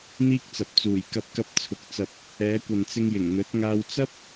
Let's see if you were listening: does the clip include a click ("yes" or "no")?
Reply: no